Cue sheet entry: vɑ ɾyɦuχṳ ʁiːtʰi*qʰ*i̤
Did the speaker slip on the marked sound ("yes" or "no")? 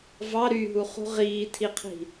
no